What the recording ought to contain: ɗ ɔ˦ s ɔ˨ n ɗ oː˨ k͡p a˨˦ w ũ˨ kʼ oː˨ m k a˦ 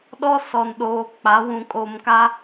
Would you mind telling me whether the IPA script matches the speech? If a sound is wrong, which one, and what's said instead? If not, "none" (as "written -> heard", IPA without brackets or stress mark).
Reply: none